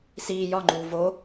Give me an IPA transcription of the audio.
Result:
s iː j ɒ ŋ͡ǃ uː v o

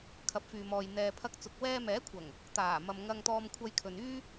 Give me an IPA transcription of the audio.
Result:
kʰ ɐ˨ p̚ f yː˨ m ɔː˨ j n̪ ɛː˨ pʰ ɐ˧ k̚ t͡s ʊ˨ k̚ w ɛː˧ m ɛː˨˥ kʷʰ ɐ˨˩ ŋ | t̪ aː˨˩ m ɐ˨ m ŋ ɐ˧ ŋ t̪ ɔː˧ m kʷʰ ɐ˧ j kʰ ɵ˨ n yː˥

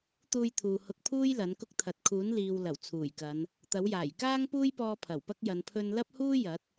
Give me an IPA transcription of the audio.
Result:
t̪ uː˧ j t̪ʰ uː˨ h ʊ˧ k̚ pʰ uː˥ j l ɐ˨˥ n k ʊ˥ k̚ t̪ʰ ɐ˨˥ t̚ kʰ uː˨˥ n l iː˨ w l ɐ˨˩ w t͡sʰ uː˨˩ j k ɐ˨˧ n | t̪ ɐ˨˥ w j aː˨˩ j k aː˥ ŋ p uː˥ j p ɔː˧ pʰ ɐ˨˩ w p ɐ˥ k̚ j ɐ˨˧ n pʰ ɵ˧ n l ɐ˥ p̚ h uː˥ j ɐ˨˥ t̚

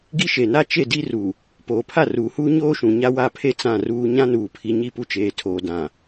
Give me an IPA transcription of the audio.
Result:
ɡ i˦ ʃ e˨ n a˦ t͡ʃ e˦˨ d i˦ r u˨ | p oː˨ pʰ a˦˨ r uː˨ h uː˦ ɲ oː˦ ʃ ũ˨ ɲ a˦ w a˦˨ pʰ e˦ t͡s ã˦˨ r uː˦ ɲ ã˦ n uː˨ pʰ i˨ ɲ i˦˨ p u˦ t͡ʃ eː˨ tʰ oː˨ d ã˨

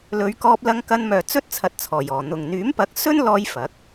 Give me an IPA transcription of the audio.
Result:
l ɵ˨˧ ɥ k ɔː˧ p̚ l ɐ˧ ŋ k ɐ˧ n m œː˨ t͡s ɵ˥ t̚ t͡sʰ ɐ˨˥ t̚ t͡sʰ ɔː˨˩ j ɔː˨˩ n̪ ʊ˨ ŋ n̪ yː˨˥ m p ɐ˨˥ k̚ s ɵ˥ n l ɔː˧ j f ɐ˨˥ k̚

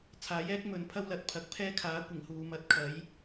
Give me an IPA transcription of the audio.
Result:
t͡sʰ aː˨˥ j ɛː˥ k̚ m ɵ˨˧ n pʰ ɐ˥ w l ɐ˨ t̚ pʰ ɐ˨˥ k̚ pʰ ɛː˥ kʰ aː˨˥ kʷ ɪ˨˩ ŋ h uː˨ m ɐ˨˥ t̚ kʰ ɐ˨˥ j

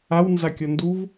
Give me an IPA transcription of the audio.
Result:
a w n z a kʲ ɔ n d u v

